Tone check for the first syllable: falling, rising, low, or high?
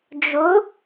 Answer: rising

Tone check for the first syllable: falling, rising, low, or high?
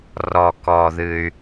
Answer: low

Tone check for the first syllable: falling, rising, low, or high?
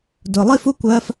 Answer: low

